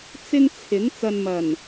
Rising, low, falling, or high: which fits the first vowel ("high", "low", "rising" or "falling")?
high